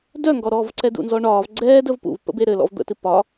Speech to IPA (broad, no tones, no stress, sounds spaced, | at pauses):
d œ ŋ ɡ ɔ ɾ ɔ v ǀ ɛ d ṵ n z ɔ ɳ ɒː v ɡ͡ǀ ɛː d ə v p ṵ v p ə̰ b e ɾ ɘ l ɔ̰ v d̪ ə̰ t ɨ p ɒ